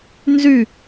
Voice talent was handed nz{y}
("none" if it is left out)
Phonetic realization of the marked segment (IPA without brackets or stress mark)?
y